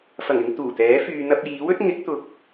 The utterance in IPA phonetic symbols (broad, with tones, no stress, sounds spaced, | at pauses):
f ɐ˨˩ ŋ ɪ˧ ŋ t̪ uː˨˩ t̪ ɛː˨˥ f yː˨ n̪ ɐ˧ p̚ j iː˨˥ w ɵ˨˥ t̚ ŋ ɪ˨˥ k̚ t̪ ʊ˨˥ k̚